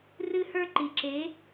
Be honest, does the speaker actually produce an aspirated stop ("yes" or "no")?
no